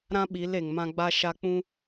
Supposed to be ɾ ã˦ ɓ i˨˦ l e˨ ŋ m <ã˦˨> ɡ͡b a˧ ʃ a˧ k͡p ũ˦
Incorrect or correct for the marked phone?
incorrect: ã˧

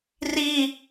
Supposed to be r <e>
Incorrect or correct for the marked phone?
incorrect: i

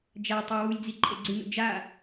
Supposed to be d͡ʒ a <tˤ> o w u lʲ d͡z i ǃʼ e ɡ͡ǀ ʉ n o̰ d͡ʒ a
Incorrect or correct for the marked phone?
correct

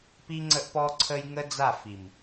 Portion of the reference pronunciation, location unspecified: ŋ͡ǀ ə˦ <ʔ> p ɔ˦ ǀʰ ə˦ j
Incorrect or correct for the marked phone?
correct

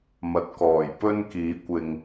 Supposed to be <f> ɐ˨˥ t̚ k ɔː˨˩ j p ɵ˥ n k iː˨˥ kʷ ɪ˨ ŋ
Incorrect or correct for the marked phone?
incorrect: m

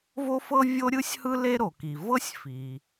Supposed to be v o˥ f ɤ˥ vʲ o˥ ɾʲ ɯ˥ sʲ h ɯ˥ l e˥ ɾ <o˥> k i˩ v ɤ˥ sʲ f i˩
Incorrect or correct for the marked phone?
incorrect: o˩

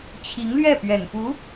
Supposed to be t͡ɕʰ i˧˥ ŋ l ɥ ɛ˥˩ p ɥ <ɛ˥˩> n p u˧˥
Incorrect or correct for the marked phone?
incorrect: ɛ˨˩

